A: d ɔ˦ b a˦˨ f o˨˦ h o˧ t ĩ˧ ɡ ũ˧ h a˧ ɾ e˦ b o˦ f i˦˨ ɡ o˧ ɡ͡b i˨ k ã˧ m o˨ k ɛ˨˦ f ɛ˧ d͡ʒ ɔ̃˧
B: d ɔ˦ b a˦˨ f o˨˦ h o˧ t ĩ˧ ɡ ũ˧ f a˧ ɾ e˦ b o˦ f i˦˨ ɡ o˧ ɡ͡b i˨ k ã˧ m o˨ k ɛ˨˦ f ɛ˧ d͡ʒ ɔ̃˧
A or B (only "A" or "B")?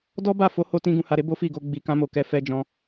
A